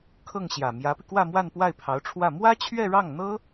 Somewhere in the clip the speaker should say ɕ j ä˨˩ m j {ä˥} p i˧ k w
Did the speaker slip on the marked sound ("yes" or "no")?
yes